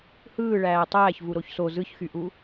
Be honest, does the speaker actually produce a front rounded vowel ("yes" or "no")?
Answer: yes